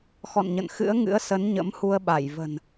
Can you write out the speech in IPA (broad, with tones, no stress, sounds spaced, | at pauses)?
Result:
x ɔ̰˧˨ n ɲ ə̰˧˨ n x ɨ̰˧˥ ə̯ ŋ ɨ̰˧˥ ə̯ s ə˨˦ n ɲ ə̰˧˥ m h u˧ ə̯ ɓ a˧˩ j v ə̤˨˩ n